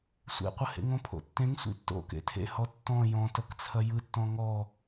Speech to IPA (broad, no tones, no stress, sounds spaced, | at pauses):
sʷ ḛ qʷ ə h ḛ ŋ õ pʰ o̰ tː ẽ ŋ sʷ ḭ tː o̰ k ḛ tʰ ḛ h ɔ tː ɔ̃ j ɔ̃ t ɐ k t͡sʰ ɐ j ɯ tː ɔ̃ ŋ ɔ